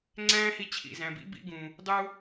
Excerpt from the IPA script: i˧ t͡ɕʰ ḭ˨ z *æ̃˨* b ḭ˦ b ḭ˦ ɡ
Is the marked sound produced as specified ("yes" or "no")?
yes